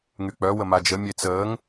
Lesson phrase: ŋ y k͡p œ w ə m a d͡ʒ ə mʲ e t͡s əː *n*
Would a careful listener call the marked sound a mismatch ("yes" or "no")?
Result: yes